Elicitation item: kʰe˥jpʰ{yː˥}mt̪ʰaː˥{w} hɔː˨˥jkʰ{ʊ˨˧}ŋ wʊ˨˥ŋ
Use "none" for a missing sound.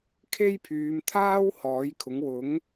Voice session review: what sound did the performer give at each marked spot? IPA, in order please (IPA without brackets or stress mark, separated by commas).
yː˨˧, w, ʊ˨˥